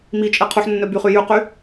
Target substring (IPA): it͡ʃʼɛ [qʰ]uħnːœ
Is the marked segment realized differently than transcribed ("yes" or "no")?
no